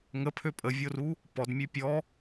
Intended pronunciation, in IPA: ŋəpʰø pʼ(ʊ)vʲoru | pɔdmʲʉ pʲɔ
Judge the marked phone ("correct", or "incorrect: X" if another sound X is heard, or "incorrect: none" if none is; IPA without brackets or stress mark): incorrect: ə